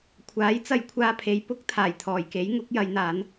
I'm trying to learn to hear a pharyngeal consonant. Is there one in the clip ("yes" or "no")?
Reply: no